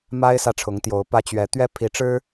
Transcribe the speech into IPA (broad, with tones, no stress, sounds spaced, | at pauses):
m a˥ ɪ̯ s ä˥˩ ʈ͡ʂʰ ʊ˧˥ ŋ t̪ j o˧˥ ʊ̯ p ä˥ t͡ɕ ɥ ɛ˧˥ t̪ ɥ ɛ˥ pʰ i˧˥ ʈ͡ʂ ɻ̩˥